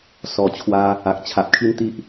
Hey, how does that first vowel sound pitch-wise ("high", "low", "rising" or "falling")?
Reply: low